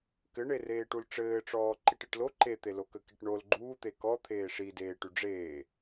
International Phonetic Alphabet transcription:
k ɘ ɳ e r eː ʈ u l ʈ͡ʂ ɘː ʈ͡ʂ ɔː ǃ i ʈ i ʈ l o ǃ e t̪ e l o k ə k i ʈ ɳ o l ɡ͡ǃ uː t̪ e k ɔ t̪ʰ eː ʂ i d eː ʈ y ɖ͡ʐ eː

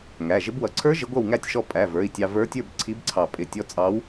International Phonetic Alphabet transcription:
ŋ æ˩˧˩ ʒ ɪ˧˥ b w ʌ˧ ǀʰ ə˞˧˥ ʒ ɪ˧˥ ɡʷ ʌ˥˨ w ŋ æ˥˨ tʲ ʃ ɔ˧ pʼ æ˩˧˩ v ə˞˩˧˩ i̯ tʲ ɑ˧ v ə˞˧˥ tʲ ə˞˥˨ b ǀʰ i˧˥ b ǀʰ ɑ˧˩ pʼ ɪ˧˩ tʲ ɔ˧˥ t͡sʼ ɑ˧˥ w

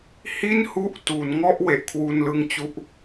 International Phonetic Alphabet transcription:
h i˥˩ n h u˦˥ ʔ t u˩˦ n ŋ ɔ˥˩ ʔ w e˨˩ ʔ kʰ w u˧ n l ɯ˦˥ ŋ t͡ɕ u˦˥ ʔ

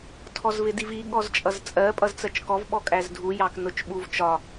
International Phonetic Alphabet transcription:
tʰ ɔ z v ɪ d i v i ɠ ɔ z t͡ʃʼ ʌ z t͡sʼ ɜ pʼ ʌ z t͡s ɜ t͡ʃ k ɔ v ɓ ɔ kʼ æ z dʱ u j ɑ k n ʊ t͡ʃ ɓ u v t͡ʃ ɒ

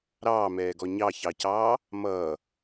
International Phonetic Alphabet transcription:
ɾ ɑː m ɛː ɡ ɔ ɲ ɑ ç ɑ c ɑː | m ʌː

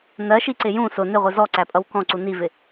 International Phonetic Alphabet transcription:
n ɜ ʃ i ǀ ɪ j ũ s ʊ n ɪ ʁʷ i z ɔ ǀ æ pʼ ʌ w k ɔ̃ ǀ u n i v ɪ

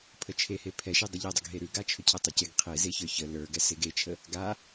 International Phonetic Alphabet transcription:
pʰ ə t͡ʃʰ e h e pʰ ɛ ʃ e dˤ ə ʎ ɛ dˤ ɘ ɡ ɦ e ɾ ʉ ɡ a t͡ʃʰ ʏ cʰ ɛ tˤ a c e ɡ qʰ e z e ç ə˞ ç ə l ə˞ ɡ ɛ s e ɡ e t͡ʃʰ ə | ɡ a

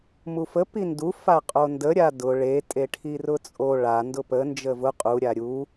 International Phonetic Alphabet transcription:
m u f ə p i n d u f a qʼ o n d ə ɾʲ a d ʊ ɭ e tʼ e ʈʰ i r ʊ t͡sʼ o ɭ a n d ʊ p ə n d͡ʒ ə v ʊ qʼ u ɾʲ a ɾʲ u

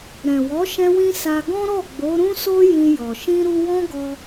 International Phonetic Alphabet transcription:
ɾ ɛ̃˨ w ɔ˨˦ ʃ ɛ̃˦ w ĩ˦ s a˧ ɡ ɔ̃˦ ɾ ɔ˦˨ ɡ͡b o˨˦ ɾ ũ˦ s o˦ j ĩ˧ j ɔ˨ ʃ ĩ˧ ɾ u˧ w ɔ̃˦ ɡ ɔ˧

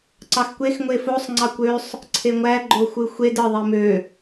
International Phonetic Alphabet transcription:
ǀ ɑ x kʷ e x ŋʷ e f o sˤ ŋ͡ǀ ɑ kʷ ø sˤ | ǀʰ e ŋʷ æ ɡ͡ǃ o xʷ ɯ xʷ e d ɯ ðˤ i m ø

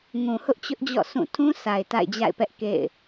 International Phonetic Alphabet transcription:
ŋ ũ˨ h ʊ˦ ʔ t͡ɕ ʊ˦ ʔ d͡ʑ ɔ̰˦˨ s ũ˦˨ tʰ ũ˦ s a˨ ɪ̯ t a̰˦˨ ɪ̯ d͡ʑ a̰˦˨ ɪ̯ p ɛ˦ ʔ k ḛ˦˨ ɪ̯

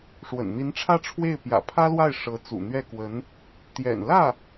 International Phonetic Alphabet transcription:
ʂ w ə̰˨˩ n n̪ i˧˥ n ʈ͡ʂʰ ä˥˧ ʈ͡ʂʰ w e˥˩ ɪ̯ p j ä̰˨˩ pʰ ä˥ l w a˥˩ ɪ̯ ʂ ɤ˧˥ t͡s ṵ˨˩ n̪ ɥ ɛ˥˩ k w ə˧˥ n | t̪ j ɛ̰˨˩ n l ä˥˩

